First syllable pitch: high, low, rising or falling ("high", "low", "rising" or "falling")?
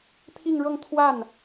falling